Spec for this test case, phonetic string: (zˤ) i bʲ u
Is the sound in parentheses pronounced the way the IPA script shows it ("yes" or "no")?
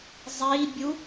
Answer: yes